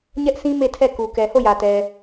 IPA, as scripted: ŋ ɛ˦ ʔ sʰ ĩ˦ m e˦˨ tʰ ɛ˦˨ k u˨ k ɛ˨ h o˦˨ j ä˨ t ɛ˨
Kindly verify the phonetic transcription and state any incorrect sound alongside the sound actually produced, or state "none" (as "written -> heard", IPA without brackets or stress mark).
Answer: ŋ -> ɲ